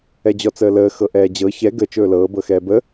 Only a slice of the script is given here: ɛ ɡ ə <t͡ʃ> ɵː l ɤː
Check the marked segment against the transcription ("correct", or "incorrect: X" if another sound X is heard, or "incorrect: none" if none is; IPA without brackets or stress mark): correct